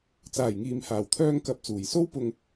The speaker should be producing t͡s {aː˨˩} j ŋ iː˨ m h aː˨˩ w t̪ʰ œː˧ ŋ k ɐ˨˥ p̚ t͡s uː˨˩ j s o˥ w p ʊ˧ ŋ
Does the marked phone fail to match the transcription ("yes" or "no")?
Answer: no